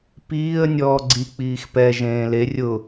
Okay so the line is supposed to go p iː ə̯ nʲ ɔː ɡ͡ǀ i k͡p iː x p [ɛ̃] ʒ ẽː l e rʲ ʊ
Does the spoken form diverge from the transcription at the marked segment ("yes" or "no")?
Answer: yes